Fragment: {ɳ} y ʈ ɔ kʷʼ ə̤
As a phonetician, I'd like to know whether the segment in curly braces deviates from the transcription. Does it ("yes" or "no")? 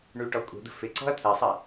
no